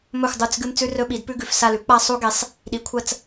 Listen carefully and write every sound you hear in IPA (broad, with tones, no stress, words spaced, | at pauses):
mɵ˦˨xʷ dˤu˦˨t͡s ɡɨ˦mt͡sʉ˦ rɵ˦ɓi˩˥d pʉ˦ɡʉ˨f sa˦˨lʉ˩˥ k͡pa˦sˤu˦ɡe˩˥sˤ | ɗi˩˥kʷʰɐ˦˨t͡s